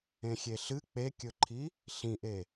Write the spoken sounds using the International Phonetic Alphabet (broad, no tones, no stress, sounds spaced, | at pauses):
ẽ xʲ e ɬ ɨ k͡p e kʲ ɵ ǃʰ i | ɬ ĩ ʔ e